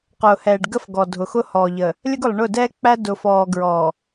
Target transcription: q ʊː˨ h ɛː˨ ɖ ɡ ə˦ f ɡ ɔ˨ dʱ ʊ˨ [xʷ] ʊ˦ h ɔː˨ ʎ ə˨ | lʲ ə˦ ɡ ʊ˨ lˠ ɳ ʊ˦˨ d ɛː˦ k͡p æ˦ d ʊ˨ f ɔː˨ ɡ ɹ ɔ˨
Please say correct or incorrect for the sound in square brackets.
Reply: incorrect